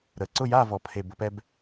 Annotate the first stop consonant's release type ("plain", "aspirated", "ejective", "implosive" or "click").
click